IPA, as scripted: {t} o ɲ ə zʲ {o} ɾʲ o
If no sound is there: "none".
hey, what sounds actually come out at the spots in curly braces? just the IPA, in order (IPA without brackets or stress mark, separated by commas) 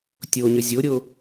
tʲ, o